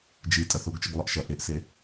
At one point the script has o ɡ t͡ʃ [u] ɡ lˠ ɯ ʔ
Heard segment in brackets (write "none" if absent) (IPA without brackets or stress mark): ɯ